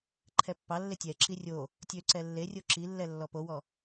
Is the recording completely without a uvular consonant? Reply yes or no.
yes